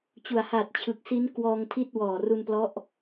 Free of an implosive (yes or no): yes